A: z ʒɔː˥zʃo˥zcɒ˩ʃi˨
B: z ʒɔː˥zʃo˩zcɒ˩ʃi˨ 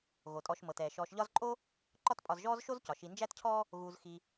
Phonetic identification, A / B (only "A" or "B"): A